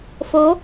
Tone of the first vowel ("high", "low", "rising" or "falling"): rising